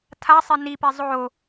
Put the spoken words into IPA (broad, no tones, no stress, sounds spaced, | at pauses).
tʰ a sˤ e n i p e zˤ o